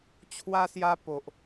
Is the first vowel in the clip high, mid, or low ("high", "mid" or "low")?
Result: low